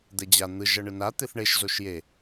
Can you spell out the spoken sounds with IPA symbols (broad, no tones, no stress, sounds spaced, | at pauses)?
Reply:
d̪ ɛ d͡ʑ a n̪ ɯ ʒ ʌ ɳ ɯ n a t̪ e θ ɳ e ʃ z o ʃ j e